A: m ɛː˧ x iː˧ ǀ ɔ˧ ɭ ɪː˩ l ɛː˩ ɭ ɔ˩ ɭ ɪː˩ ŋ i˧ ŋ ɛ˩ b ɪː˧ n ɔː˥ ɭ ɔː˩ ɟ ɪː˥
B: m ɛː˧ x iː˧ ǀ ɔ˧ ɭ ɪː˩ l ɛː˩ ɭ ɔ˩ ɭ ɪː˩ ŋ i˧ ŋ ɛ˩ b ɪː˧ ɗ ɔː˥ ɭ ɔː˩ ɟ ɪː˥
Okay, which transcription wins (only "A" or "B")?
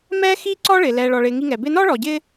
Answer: A